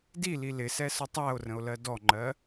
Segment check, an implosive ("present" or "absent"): absent